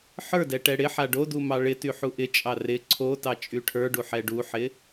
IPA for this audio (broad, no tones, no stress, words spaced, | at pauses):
ħə˞dɛ ʈɛɽɪħa ɖodu mɑɭɪty ħuʔɪt͡ʃʼɑ rɪ ǀʰo tɑt͡ʃʼyʈʰə˞ɖu ħɛɖuħɪ